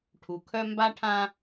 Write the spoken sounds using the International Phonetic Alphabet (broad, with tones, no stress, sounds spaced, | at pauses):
ʈʰ u˨ kʰ œ˦ m b a˦ ʈʰ ã˦